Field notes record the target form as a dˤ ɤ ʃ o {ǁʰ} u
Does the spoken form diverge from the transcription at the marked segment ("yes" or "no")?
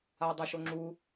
yes